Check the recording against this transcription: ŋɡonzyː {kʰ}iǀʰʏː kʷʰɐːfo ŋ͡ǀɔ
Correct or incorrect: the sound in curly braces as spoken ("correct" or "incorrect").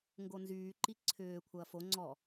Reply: incorrect